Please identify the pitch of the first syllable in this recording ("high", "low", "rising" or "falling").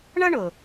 high